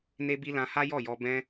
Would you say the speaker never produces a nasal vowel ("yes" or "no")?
no